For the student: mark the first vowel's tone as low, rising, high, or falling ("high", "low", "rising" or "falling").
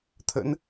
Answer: rising